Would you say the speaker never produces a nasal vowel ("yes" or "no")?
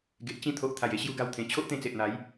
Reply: no